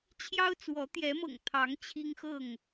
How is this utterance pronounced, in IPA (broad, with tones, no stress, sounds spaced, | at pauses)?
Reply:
t͡ɕʰ j ɑ˦ ʊ̯ t͡s w ɔ˨˦ t̪ j ɛ˨˦ m ɤ̰˨˩ ŋ t̪ʰ ɑ˨˦ ŋ t͡ɕʰ i˦ ŋ x ɤ˥˨ ŋ